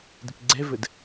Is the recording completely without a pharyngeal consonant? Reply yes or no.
yes